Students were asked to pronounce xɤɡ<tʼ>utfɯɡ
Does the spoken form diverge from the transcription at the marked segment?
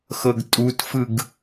no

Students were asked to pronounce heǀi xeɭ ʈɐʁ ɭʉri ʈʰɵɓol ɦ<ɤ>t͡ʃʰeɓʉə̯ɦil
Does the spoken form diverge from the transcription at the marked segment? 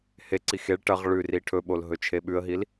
yes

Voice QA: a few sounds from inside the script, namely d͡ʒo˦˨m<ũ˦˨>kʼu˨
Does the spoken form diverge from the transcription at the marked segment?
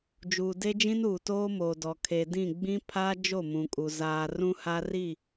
yes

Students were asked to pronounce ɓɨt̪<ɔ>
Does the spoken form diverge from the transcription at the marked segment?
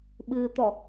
no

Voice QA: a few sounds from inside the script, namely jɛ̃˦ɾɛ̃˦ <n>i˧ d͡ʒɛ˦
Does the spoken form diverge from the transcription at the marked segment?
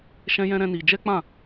no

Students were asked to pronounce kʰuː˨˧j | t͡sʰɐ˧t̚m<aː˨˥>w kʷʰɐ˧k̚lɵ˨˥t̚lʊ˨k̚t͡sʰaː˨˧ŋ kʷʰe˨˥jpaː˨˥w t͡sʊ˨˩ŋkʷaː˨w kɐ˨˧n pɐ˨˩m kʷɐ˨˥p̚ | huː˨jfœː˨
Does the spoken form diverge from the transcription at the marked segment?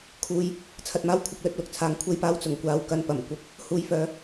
yes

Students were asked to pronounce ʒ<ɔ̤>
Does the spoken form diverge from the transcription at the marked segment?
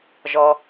yes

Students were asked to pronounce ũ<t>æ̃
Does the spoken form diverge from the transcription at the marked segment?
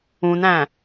yes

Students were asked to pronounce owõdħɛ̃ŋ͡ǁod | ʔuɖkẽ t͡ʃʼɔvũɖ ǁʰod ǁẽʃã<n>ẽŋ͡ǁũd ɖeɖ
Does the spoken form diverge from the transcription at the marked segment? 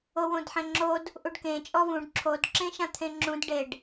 yes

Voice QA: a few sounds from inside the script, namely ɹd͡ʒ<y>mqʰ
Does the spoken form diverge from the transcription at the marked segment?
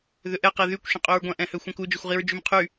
no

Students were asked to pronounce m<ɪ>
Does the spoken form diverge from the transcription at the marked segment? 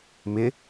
no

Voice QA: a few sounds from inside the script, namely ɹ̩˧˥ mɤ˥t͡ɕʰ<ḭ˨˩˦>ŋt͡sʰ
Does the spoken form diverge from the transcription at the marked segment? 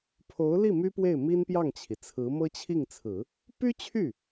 yes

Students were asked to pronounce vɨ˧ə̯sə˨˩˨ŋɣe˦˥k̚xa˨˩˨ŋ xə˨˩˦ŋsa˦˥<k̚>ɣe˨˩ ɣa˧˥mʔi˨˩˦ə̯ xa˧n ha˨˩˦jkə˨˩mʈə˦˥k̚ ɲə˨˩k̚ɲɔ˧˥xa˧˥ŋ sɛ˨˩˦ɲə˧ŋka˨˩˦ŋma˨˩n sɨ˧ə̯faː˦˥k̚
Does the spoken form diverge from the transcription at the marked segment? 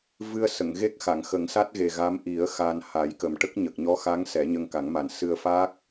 yes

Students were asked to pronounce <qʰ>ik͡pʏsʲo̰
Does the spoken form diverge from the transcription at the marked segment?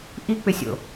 yes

